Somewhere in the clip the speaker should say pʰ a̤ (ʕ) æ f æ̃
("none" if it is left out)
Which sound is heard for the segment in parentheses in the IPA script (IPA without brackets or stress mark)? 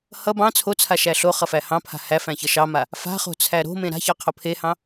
h